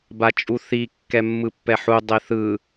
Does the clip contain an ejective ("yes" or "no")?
yes